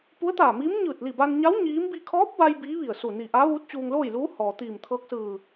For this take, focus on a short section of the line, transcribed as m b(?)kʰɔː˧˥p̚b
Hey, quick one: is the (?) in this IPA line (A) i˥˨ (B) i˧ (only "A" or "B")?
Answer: B